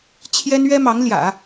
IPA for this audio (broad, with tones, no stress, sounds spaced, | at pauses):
t͡ɕʰ j ɛ˥ n ɥ ɛ˥ m ɑ˧˥ ŋ l j ä̰˨˩˦